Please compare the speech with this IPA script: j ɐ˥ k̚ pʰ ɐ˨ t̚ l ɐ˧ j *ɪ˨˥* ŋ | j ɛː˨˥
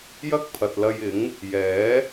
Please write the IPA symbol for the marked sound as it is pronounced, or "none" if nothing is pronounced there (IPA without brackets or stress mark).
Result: ɪ˨˥